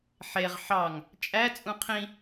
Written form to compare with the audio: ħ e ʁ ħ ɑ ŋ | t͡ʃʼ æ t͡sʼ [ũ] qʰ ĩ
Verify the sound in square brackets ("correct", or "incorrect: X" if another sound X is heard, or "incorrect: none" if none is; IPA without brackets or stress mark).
correct